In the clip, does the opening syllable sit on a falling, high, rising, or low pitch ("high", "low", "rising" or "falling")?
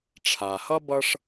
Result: low